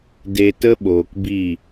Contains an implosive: yes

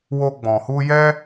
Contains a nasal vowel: yes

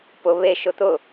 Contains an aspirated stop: no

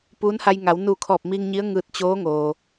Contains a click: no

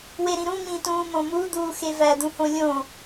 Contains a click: no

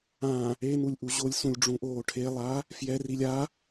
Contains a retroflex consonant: yes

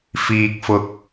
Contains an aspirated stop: no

